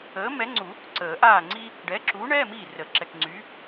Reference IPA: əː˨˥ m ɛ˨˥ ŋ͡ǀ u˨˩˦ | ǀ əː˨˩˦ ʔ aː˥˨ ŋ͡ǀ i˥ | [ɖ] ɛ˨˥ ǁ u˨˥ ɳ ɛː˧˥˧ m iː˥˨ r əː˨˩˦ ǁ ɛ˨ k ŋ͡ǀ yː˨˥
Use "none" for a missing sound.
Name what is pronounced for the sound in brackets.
ɖ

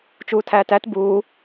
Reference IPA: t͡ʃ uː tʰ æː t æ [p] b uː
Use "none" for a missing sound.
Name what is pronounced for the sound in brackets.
t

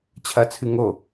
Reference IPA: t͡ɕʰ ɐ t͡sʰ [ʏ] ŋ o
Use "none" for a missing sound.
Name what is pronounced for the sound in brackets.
ɨ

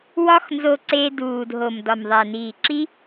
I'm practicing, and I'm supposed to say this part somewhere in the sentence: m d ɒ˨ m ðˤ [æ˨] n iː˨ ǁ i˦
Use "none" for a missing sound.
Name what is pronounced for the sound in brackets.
æ˨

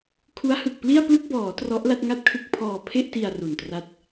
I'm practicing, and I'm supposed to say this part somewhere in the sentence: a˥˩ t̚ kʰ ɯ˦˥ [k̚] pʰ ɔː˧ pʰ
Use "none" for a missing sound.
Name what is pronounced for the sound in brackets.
k̚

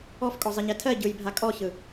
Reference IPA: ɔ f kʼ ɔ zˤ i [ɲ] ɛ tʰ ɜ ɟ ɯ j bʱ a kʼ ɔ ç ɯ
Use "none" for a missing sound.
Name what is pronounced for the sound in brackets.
ɲ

